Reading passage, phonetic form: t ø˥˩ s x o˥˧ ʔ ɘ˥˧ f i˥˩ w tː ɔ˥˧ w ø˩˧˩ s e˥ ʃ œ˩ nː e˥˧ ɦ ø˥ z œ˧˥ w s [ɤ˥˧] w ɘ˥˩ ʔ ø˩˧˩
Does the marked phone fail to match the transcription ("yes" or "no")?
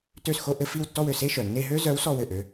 yes